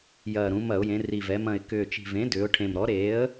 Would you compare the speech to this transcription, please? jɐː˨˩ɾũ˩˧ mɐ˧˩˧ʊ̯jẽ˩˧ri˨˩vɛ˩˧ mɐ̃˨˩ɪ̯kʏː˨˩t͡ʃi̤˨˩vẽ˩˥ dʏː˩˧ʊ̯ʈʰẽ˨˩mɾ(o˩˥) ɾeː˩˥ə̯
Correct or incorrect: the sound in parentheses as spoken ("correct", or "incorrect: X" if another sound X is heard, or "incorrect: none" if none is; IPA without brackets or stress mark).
incorrect: ɔ˩˥